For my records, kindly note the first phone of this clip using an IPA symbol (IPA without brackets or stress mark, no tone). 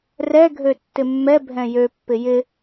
r